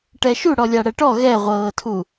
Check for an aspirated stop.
present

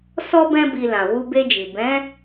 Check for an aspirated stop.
absent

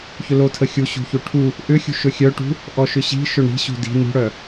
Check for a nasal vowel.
absent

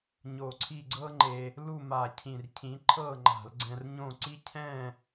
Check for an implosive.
absent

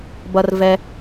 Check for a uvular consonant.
absent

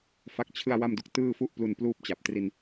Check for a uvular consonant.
absent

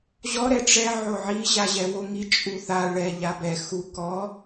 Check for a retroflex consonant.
present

